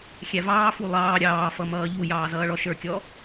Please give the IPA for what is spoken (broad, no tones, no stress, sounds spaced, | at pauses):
xʲ æ v ɑː f u lˠ ɑː ɾʲ ɑː f ʌ m ʌː ʎ u j ɑː z ʌː ɭ ɔ ʃ ə˞ kʲ ɔ